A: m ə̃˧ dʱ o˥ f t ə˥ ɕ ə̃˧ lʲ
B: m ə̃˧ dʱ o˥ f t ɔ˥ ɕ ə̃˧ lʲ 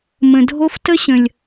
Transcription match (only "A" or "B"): A